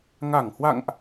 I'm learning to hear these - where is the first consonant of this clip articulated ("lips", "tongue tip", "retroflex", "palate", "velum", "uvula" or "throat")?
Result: velum